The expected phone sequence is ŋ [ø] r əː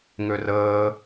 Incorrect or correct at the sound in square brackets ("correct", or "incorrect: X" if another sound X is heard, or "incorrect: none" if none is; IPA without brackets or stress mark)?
correct